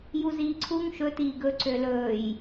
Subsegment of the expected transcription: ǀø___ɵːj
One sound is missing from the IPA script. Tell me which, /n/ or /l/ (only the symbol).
l